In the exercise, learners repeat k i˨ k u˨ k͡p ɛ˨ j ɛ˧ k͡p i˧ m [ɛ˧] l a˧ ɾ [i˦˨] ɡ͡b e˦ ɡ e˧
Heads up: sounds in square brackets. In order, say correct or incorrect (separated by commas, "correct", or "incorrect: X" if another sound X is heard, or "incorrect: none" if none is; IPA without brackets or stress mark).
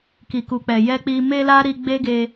incorrect: e˧, incorrect: i˧